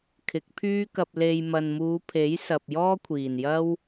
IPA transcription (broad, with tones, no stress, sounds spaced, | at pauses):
kʰ ɪ˨˥ k̚ pʰ yː˥ k ɐ˧ p̚ l e˧ j m ɐ˨ n m uː˨˧ pʰ e˨˥ j s ɐ˨ p̚ j ɔː˥ kʷʰ iː˨˩ n j ɐ˥ w